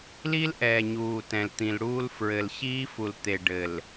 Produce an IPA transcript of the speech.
l i˦ l ʔ ɛː˨ ɲ uː˨ t ɛ̃˨ l t̪ ĩ˨ l ɽ uː˦ l f ɹ ɘ˨ l ɕ iː˦ f u˨ l t̪ e˨ ɖ ɘ˨ l

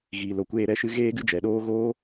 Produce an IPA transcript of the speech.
ɣ iː˧ l o˧ kʷ eː˦ ɾ ɛ˨˦ ʃ ɨ˧ ɣ eː˦ ɡ ɨ˦ d͡ʒ ɛ˨ ɗ oː˦ ɣ oː˦

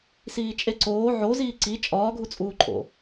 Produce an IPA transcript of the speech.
s iː t͡ʃʼ e ǀ oː ʕ o z iː ǀ i t͡ʃʼ ɒː ɡʱ u t͡sʼ uː ǃʰ o̰

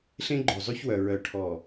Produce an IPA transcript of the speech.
ɬ ẽ˦ ɡ͡ǃ o˨ zˤ y˦ ç w œ˨ ɹ œ˨ ʈʰ ɔ˨

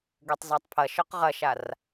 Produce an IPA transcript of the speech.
ɡ ø tˤ z a tˤ pʰ ɐ ʃ œ q ʁ ɐ ʃ a r

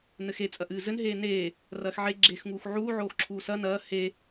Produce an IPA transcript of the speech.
n ɘ x e t͡sʼ ɐ ʔ ɨː z ɘ n ɦ eː n eː | r ɐː x ʕ e ɡ͡ǁ eː x ŋ uː x ʕ uː ʕ oː x ǁʰ uː s ɐ n ɐː h e

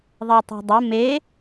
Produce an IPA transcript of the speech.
ðˤ e tˤ o̤ dˤ o m e

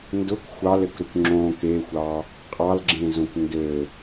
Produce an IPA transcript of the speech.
n d ʊ k xʷ ɑ l ɘ k ɾ ʊ kʷ ŋ͡ǁ õ k e xʷ ɑ | qʼ ɑ l ɡ͡ǁ ẽ z õ kʷ n d ɘ

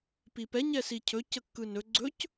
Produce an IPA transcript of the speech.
p i p ɛ ɲ ɛ s i cʰ ɵ c ə kː ɯ n ɵ ɡ͡ǀ ɵ c

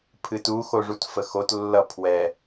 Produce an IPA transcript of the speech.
pʰ ɨ t u x o ʐ u t f ə x o t lː ʌ pʰ w ɛ

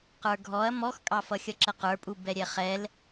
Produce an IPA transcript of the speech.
q ə˞ ɡʱ ɔ ɐ̯ m ɔ x kʼ ɑ f ʌ xʲ ʌ ǁ ə q ə˞ pʼ u b ɛ ɾʲ ɛ χ ɛ l

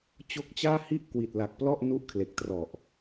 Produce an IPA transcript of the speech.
t͡ɕ o˦˥ k̚ t͡ɕ aː˥˩ h i˥˩ ʔ k w i˨˩ t̚ l a˨˩ k̚ p l ɔ˥˩ ʔ n u˦˥ ʔ kʰ l e˨˩ k̚ t r ɔ˨˩ ʔ

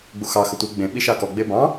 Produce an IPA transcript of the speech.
ɡ͡b u x ɑ x ə tʷ i ɡ͡b ẽ ɓ i ʃ ɑ k ɔ ɡ͡b e b ɑ̃

